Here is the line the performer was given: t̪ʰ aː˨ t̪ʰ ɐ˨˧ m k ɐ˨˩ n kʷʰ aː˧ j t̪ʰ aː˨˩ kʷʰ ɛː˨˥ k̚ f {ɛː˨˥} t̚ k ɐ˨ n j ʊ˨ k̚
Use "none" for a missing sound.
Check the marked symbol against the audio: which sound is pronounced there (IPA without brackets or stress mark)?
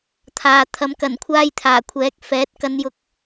ɛː˨˥